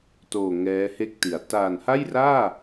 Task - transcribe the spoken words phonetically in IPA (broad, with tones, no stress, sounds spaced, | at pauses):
t oː˨˩ ŋ ɛː˦˥ h e˥˩ k̚ t i˩˦ a̯ t aː˨˩ n h a˥˩ j r aː˥˩